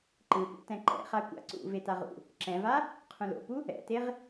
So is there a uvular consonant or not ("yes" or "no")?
yes